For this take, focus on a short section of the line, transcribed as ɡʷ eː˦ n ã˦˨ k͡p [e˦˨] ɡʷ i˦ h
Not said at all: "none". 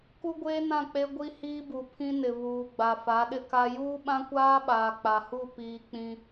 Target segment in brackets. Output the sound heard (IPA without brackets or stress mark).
e˦